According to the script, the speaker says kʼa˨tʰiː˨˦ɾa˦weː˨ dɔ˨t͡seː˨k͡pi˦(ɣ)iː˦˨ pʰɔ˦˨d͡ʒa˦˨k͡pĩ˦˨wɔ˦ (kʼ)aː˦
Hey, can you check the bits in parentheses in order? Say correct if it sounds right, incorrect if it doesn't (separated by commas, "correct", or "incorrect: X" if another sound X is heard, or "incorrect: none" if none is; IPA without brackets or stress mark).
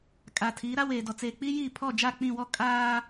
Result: incorrect: j, correct